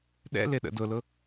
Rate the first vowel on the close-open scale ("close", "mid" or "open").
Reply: mid